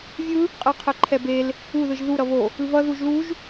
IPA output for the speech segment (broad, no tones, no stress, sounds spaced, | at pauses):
vʲ ɯ | qʼ ɯ qʰ ɛ ǃʰ ɛ b e l | u ð ɯ ʒ ð u ɾ ʌ β o | ɯ β ʌ ð u ʒ l u ʒ